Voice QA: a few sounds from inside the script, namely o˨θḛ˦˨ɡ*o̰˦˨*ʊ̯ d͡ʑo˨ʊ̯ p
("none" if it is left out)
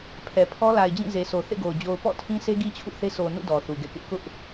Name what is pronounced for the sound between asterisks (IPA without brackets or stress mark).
o˨